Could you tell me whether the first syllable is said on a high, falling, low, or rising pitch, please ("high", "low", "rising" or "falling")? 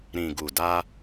low